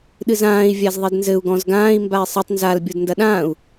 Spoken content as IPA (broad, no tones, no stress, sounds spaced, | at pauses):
ɗ ɨ z ãː i̯ vʲ a z ðˤ e d n z ɘ u̯ ɡ ɔ̃ z ɡ ãː i̯ m b a i̯ sˤ ɨ tˤ n z a l bʲ o d n d ɐ ɗ ãː u̯